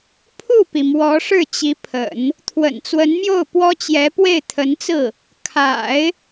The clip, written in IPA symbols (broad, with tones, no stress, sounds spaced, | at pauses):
pʰ u˥˩ p i˩ m w ɔ˧˥ ʂ ɻ̩˥˩ t͡ɕ i˧˥ pʰ ə̰˨˩˦ n | t̪ʰ w ə̰˨˩ n t͡s w ə˧˥ n m j o˥˩ ʊ̯ p w ɔ˥ t͡ɕ j ɛ˧˥ p w e˥˩ ɪ̯ t̪ʰ ə˧˥ n t͡s ɹ̩˥˩ | kʰ a̰˨˩˦ ɪ̯